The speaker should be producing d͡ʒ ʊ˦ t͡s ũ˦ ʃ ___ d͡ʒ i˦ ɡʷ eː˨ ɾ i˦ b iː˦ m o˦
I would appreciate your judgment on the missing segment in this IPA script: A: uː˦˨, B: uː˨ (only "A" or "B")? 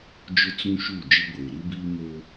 A